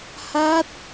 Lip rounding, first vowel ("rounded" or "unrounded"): unrounded